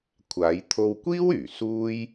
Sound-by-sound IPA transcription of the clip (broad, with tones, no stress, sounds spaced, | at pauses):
kʷʰ aː˨˧ j t̪ʰ o˧ w kʷ iː˥ w yː˨˩ s uː˥ j